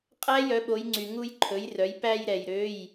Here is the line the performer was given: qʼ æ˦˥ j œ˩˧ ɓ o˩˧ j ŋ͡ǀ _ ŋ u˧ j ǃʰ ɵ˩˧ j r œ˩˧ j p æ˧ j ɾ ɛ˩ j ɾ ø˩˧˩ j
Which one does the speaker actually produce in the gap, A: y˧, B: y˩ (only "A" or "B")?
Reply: B